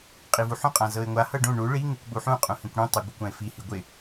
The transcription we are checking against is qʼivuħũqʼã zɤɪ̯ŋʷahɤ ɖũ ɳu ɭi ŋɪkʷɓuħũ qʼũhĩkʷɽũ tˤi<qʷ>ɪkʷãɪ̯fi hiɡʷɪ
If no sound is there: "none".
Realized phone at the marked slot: ɡʷ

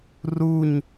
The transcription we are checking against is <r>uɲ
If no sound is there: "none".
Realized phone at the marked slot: r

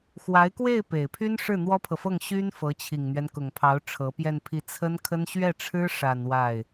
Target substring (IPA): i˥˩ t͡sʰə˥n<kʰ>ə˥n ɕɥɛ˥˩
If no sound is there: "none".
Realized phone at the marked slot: kʰ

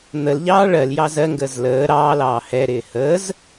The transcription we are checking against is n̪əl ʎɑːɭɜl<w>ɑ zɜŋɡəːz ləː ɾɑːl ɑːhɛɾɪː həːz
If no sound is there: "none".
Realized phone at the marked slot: j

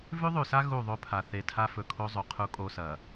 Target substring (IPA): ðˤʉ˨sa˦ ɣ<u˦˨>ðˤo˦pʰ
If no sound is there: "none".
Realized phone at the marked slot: u˦˨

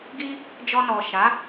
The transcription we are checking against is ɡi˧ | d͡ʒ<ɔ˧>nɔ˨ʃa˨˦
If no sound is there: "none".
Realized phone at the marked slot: ɔ˧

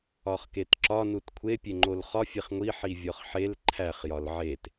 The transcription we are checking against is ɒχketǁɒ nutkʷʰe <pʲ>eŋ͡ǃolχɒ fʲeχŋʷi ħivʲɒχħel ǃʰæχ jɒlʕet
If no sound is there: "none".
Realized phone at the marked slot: pʲ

